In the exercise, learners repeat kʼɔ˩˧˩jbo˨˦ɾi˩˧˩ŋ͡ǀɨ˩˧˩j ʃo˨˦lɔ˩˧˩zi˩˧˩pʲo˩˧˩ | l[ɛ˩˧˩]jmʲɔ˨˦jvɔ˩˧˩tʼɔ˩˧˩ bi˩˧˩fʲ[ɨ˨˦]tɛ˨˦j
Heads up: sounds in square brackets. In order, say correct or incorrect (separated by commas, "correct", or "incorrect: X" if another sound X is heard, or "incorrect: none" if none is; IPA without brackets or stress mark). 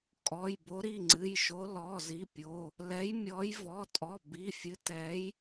incorrect: ɛ˨˦, correct